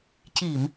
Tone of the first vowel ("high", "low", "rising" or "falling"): low